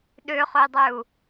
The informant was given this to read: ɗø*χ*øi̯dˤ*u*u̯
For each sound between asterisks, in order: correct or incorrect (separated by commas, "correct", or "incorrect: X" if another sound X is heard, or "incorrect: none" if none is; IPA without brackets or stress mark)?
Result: correct, incorrect: ø